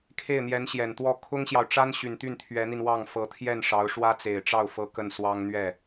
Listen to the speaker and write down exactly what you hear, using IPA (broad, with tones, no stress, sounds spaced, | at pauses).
kʰ e˥˩ ɪ̯ n̪ j ɛ˧˥ n ɕ j ɛ˨˩ n t̪ w ɔ˥˩ kʰ ʊ˥ ŋ ɕ j ɑ˨ ʊ̯ ʈ͡ʂ a˥ n ɕ y˨˩ n t̪ y˥˩ n t̪ʰ ɥ ɛ˧˥ n̪ i˧ n w ɑ˥˩ ŋ f ɤ˧˥ t̪ʰ j ɛ˥˩ n ʂ ɑ˧˥ ʊ̯ ʂ w ä˥ t͡s e˨˩ ɪ̯ ʈ͡ʂ ɑ˥˩ ʊ̯ f ɤ˥ k ə˥˩ n s w ɑ˥ ŋ n̪ ɥ ɛ˥˩